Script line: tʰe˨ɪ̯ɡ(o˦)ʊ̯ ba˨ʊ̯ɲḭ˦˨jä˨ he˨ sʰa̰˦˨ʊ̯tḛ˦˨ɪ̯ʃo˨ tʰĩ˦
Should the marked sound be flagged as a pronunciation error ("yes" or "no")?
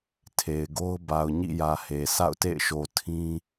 no